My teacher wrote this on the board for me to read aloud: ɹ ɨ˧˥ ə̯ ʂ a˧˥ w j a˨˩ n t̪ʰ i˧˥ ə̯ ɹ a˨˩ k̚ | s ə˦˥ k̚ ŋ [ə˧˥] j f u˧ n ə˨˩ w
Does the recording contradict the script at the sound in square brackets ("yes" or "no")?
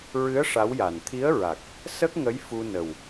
no